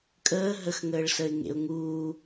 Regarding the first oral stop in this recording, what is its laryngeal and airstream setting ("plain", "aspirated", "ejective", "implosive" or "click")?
ejective